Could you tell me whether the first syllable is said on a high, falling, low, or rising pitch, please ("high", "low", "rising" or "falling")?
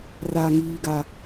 low